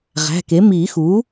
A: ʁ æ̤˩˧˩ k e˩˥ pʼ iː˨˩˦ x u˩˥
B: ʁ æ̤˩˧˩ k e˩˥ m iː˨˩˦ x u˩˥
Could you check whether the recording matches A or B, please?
B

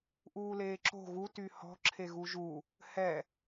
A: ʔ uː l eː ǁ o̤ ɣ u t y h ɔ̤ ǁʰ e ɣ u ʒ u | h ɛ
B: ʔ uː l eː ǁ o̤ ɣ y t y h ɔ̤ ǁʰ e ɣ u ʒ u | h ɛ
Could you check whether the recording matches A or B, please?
A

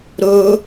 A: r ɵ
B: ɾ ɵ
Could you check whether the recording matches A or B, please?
B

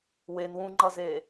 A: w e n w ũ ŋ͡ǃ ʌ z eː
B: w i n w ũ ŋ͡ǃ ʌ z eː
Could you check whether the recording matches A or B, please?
A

